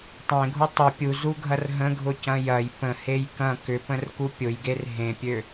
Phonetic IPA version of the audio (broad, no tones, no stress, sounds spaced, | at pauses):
tˤ ẽ ɡʱ u tˤ ʊ pʲ u z u ɡʱ ɐ r ɦ ə̃ ɡʱ ʊ c ɐ̃ j ɐ j p ə̃ h e j k ɐ̃ k ʏ p ə̃ r k u pʲ ʊ j ɡ e r ɦ ẽ pʲ ø